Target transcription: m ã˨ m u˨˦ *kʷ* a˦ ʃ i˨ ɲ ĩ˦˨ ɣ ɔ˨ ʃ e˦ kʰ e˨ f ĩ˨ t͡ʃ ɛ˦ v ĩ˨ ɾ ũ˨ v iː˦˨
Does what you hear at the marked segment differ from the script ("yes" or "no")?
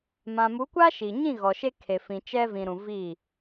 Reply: no